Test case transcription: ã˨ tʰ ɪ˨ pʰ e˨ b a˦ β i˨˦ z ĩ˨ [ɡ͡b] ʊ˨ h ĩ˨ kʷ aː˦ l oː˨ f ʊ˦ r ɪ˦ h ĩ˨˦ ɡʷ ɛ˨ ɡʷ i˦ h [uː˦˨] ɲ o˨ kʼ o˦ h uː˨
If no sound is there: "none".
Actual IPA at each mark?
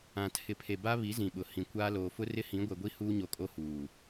ɓ, uː˦

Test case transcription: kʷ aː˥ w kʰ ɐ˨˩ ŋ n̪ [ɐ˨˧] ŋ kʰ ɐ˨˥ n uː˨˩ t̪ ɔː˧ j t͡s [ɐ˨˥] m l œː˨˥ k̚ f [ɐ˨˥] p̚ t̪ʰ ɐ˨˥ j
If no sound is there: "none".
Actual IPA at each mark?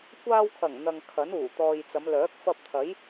ɐ˨, ɐ˨˧, ɐ˧

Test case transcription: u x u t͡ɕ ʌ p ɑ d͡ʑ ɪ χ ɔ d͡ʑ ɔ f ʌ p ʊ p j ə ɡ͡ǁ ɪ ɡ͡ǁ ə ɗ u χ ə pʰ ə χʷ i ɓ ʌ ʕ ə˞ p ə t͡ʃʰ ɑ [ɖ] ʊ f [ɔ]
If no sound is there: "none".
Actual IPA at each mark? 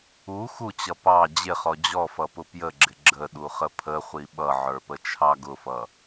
ɡ, ʌ

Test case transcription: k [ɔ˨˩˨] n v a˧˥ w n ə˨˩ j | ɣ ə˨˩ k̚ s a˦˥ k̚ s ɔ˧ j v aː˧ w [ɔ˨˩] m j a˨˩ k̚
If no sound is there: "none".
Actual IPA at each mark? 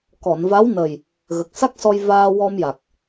ɔ˨˩˨, ɔ˧

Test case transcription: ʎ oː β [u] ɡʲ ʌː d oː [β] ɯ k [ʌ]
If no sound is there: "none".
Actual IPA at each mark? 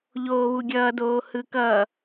u, h, ʌ

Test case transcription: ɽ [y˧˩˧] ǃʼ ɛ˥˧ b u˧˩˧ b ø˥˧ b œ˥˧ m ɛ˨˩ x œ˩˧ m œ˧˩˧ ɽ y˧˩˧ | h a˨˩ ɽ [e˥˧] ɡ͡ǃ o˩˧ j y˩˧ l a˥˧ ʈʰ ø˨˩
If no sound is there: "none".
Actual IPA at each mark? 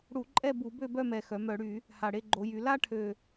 u˧˩˧, e˥˧

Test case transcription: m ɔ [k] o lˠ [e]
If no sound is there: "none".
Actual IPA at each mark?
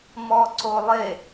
ǀ, e

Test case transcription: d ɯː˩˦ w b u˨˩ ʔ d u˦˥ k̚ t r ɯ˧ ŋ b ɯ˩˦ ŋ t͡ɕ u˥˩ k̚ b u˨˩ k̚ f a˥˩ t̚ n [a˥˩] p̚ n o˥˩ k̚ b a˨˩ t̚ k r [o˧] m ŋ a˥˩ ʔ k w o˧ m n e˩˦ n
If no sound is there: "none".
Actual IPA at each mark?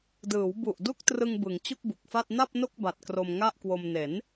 a˥˩, o˧

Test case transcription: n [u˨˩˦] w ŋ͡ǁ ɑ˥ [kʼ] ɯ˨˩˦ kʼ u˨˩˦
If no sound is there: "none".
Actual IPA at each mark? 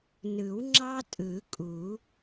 ɯ˨˩˦, tʼ

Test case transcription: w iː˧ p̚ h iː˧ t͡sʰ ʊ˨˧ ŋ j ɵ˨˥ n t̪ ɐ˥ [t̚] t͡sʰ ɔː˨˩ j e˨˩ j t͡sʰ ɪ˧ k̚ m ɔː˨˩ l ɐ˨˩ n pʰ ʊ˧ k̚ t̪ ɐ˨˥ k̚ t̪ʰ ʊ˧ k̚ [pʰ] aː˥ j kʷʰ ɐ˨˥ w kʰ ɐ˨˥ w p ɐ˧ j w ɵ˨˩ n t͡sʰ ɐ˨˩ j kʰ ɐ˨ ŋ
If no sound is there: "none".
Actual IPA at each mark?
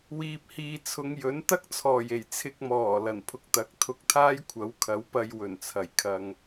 k̚, t̪ʰ

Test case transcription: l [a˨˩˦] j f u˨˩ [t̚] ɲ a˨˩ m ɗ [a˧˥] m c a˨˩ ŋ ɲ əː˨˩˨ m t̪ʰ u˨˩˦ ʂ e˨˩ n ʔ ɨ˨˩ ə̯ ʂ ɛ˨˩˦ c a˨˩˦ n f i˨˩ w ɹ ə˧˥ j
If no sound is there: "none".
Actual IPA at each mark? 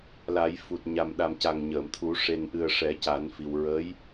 a˨˩˦, t̚, a˨˩

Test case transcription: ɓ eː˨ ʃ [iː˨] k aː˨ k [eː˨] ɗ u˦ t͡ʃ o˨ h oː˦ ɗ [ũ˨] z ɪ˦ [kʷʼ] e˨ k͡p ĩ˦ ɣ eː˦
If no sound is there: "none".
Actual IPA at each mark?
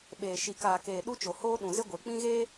i˨, eː˨, ũ˨, ɡʷ

